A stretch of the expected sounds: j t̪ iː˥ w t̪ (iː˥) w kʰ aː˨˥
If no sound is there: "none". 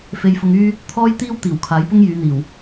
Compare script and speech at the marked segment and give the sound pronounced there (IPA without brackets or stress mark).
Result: iː˨˩